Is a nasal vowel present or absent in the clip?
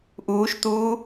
absent